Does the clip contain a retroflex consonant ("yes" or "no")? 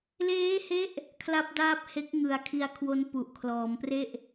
no